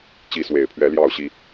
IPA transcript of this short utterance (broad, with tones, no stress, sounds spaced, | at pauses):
t͡ɕ i˨˦ s w e˨˩ ɪ̯ pʰ ɥ ɛ˨˦ l j ɑ˥˨ ʊ̯ ɕ i˦